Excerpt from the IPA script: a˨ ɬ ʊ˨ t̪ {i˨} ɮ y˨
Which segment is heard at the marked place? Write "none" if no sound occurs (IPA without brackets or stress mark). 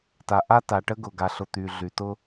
y˨